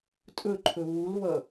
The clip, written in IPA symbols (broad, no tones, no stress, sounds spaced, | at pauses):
tʼ ɵ ǃʰ ɵ β u l β ʌ